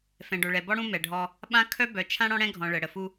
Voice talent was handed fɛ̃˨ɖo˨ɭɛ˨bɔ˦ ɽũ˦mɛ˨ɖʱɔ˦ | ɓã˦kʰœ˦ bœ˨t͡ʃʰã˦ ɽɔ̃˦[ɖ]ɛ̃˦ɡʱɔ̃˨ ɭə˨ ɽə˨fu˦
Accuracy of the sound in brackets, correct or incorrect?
incorrect: ɽ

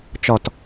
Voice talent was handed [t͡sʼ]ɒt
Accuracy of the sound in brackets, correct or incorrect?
incorrect: t͡ʃ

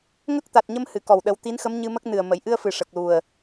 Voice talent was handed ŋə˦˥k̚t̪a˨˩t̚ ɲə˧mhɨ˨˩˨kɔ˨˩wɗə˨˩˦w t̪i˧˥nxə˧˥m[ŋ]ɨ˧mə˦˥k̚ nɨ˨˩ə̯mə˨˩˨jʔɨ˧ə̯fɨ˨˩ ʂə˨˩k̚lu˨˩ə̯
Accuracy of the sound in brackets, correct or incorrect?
incorrect: ɲ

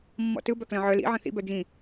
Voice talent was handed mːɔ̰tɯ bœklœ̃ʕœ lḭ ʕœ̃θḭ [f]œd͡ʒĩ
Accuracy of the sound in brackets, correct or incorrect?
incorrect: b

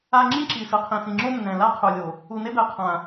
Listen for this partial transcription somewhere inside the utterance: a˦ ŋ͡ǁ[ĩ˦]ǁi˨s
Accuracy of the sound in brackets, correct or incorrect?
correct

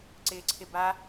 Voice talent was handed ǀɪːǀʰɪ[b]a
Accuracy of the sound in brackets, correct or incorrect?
correct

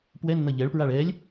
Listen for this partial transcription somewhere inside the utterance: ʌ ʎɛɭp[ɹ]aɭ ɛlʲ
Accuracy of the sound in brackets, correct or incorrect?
correct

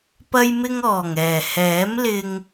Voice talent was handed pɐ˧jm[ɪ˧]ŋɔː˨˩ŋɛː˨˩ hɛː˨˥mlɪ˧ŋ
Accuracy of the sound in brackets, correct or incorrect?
correct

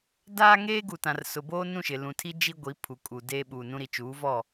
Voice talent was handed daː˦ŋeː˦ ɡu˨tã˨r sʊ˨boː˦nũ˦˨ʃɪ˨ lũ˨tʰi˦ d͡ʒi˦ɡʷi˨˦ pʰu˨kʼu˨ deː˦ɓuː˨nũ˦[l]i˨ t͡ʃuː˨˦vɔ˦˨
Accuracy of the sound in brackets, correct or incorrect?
incorrect: ɾ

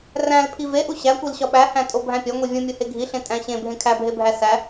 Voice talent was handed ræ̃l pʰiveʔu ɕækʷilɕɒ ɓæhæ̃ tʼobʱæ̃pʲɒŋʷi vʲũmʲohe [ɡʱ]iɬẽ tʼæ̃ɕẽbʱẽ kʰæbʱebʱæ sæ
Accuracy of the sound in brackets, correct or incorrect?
correct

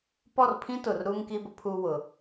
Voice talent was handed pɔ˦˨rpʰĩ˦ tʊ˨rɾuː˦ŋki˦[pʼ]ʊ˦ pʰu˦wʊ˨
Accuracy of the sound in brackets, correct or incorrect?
incorrect: b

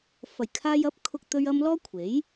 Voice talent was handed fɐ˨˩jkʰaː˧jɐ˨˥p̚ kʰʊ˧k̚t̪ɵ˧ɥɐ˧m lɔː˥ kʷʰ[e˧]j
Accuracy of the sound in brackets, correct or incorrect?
incorrect: e˨˥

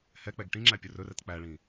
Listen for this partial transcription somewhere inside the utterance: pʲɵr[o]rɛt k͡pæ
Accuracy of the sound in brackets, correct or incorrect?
incorrect: ɵ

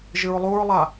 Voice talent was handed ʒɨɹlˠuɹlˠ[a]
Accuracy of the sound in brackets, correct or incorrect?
correct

